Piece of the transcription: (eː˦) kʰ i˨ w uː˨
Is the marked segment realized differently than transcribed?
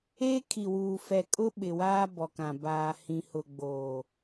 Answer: no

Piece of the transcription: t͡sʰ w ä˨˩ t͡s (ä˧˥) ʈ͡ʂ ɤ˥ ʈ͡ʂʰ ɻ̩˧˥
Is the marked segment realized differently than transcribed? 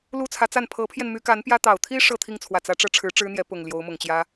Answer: no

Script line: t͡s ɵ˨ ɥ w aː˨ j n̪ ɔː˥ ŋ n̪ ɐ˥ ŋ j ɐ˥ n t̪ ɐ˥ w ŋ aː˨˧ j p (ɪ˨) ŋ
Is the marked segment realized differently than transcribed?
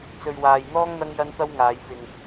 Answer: no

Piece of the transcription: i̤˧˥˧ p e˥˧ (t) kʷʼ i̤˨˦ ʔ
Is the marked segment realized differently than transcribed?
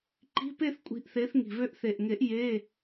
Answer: yes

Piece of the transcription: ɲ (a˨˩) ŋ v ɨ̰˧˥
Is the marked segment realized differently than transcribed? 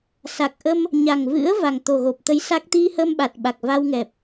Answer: no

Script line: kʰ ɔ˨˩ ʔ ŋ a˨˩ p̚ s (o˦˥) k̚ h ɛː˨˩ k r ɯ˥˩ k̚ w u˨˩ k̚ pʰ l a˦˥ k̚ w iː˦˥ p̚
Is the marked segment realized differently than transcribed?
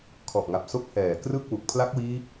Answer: no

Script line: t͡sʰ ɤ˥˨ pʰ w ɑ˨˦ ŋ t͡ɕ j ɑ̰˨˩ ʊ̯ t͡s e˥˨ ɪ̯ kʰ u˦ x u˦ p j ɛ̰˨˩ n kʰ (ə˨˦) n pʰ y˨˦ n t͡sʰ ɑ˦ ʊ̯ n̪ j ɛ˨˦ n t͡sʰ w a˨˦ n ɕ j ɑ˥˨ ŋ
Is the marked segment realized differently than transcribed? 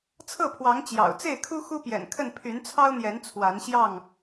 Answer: yes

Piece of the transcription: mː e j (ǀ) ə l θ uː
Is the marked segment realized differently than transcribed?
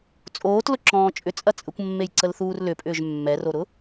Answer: no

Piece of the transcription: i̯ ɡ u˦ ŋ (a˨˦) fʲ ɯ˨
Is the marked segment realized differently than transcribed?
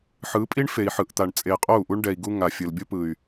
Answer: yes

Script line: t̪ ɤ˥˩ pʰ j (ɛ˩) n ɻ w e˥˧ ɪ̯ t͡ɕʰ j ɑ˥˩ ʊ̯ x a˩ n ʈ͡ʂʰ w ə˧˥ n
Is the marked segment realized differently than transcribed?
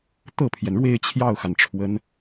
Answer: no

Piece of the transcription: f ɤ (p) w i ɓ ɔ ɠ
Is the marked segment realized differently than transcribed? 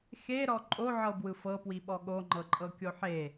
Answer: no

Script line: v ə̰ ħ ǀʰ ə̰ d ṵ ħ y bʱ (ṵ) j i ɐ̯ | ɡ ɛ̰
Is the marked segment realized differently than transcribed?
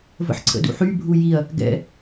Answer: yes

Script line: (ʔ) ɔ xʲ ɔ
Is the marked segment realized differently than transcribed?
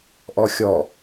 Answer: no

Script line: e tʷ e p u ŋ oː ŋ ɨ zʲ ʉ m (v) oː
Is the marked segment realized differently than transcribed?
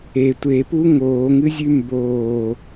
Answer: yes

